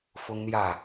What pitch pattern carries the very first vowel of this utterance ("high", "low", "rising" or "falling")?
high